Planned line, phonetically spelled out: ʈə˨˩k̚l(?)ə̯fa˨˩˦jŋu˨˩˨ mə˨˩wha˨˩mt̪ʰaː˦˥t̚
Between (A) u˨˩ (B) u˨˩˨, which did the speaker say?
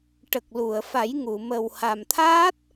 B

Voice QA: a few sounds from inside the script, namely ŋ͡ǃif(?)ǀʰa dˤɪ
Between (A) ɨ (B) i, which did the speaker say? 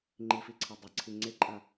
B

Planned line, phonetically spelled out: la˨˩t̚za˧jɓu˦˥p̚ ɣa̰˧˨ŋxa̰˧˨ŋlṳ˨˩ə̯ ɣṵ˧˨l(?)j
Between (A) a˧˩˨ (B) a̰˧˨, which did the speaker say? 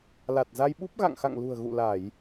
A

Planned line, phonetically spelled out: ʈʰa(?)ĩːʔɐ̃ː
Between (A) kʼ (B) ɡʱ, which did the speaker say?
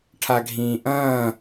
B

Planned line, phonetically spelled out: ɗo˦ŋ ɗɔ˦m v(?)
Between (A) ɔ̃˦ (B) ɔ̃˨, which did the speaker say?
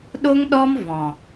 B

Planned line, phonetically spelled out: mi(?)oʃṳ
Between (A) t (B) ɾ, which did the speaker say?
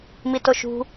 A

